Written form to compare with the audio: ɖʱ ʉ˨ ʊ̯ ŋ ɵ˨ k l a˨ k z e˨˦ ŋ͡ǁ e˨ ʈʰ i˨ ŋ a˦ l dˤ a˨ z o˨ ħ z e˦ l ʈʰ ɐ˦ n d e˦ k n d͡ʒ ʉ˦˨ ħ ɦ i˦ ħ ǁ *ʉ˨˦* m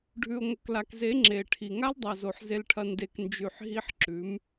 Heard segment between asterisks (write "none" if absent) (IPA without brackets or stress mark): ʉ˨˦